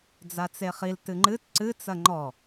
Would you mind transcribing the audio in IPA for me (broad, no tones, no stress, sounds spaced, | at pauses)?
d͡z a t͡s e χ i l t ɨ ŋ͡ǃ ɨ t ǀ ɨ t͡s ɐ ŋ͡ǃ ɔ